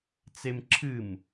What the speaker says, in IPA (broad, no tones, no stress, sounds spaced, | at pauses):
t͡s e m ǁʰ ɨ m